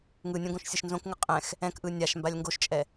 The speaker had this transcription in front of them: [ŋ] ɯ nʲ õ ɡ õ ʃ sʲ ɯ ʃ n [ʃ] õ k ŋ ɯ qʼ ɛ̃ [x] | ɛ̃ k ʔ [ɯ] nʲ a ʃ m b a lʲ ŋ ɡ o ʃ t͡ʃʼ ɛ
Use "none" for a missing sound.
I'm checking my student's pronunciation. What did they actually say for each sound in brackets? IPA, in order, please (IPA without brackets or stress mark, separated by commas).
ŋ, z, x, ɯ